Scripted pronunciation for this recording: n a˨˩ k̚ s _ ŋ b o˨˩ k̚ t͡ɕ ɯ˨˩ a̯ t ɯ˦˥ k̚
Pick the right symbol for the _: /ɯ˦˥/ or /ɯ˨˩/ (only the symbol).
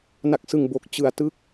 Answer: ɯ˨˩